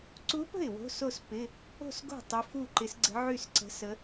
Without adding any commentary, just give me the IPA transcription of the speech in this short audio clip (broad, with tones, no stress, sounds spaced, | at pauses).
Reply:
ǀ u˧˥ p ə̤˥˩ ɪ̯ w o̤˧˥˧ s o˥˩ s p ɪ˧˥˧ | o̤˥˩ s ɡ o̤˥˩ tˤ ɪ˧˥ f u˥˩ ǃ ɪ˧˥ s ɡ͡ǀ ə̤˧˥ ʕ y˥˩ s ǀ ə̤˧˥ s ə˧˥